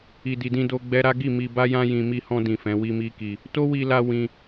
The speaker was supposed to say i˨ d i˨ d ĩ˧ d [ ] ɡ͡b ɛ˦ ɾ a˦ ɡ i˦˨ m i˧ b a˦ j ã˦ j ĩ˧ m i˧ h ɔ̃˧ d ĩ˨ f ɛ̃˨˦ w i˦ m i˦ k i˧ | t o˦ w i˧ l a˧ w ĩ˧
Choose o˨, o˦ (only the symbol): o˦